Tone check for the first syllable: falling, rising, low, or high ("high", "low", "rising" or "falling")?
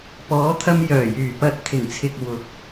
rising